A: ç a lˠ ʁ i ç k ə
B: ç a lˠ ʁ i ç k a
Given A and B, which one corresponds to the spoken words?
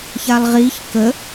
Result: A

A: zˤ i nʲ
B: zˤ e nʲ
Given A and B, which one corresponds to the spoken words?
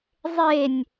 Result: B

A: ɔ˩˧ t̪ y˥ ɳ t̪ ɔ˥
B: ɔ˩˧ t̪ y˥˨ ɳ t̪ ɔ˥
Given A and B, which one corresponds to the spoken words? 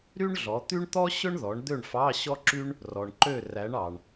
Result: A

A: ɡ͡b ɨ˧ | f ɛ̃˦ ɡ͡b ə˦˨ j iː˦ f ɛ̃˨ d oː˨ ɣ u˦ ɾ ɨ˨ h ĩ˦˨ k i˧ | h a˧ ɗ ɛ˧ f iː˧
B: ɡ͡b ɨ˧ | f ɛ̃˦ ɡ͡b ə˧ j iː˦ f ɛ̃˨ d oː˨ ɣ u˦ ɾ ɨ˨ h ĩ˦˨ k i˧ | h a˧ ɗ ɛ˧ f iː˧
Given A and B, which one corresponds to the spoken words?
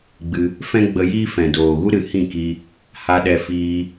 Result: B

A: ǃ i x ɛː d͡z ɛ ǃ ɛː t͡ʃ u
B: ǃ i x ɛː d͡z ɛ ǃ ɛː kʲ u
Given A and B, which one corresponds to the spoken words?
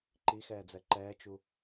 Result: A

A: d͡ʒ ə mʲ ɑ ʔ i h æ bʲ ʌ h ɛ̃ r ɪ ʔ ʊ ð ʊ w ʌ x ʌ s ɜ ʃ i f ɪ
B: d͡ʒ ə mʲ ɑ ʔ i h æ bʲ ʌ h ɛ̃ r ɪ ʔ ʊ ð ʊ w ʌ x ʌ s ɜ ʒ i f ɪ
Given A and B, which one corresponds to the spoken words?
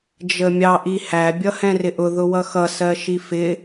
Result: A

